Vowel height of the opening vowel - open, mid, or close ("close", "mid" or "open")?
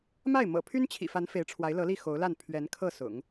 open